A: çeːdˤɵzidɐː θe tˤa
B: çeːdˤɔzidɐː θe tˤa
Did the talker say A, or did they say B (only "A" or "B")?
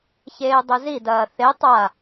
A